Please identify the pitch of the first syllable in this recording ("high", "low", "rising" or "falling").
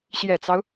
low